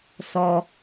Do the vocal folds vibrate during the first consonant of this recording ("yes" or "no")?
no